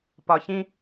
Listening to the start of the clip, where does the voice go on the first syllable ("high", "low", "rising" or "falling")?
low